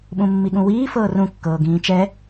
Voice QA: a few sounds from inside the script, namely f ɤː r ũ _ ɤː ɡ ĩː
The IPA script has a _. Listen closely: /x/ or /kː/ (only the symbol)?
kː